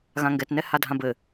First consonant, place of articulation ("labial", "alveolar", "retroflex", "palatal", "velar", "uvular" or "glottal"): velar